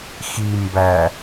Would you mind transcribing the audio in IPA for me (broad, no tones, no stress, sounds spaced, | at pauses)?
x i m b æ